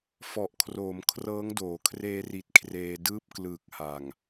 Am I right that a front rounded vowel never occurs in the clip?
yes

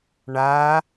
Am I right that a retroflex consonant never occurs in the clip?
no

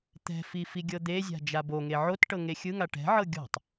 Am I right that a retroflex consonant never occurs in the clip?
no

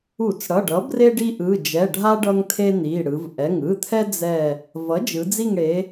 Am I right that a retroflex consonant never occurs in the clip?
no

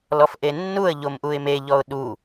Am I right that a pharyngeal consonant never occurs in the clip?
yes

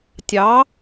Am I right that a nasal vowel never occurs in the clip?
yes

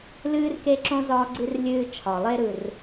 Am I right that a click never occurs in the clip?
no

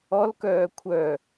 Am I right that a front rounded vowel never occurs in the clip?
no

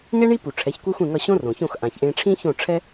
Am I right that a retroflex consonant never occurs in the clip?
no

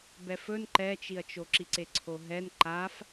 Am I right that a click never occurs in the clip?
no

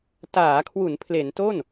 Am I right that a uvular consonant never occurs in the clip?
yes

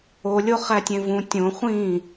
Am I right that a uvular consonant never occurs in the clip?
no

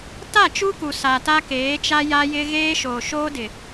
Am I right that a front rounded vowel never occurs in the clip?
yes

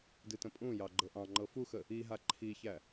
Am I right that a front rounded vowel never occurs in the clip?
yes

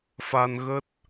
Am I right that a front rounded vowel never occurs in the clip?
yes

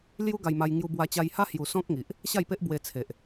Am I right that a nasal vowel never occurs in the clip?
no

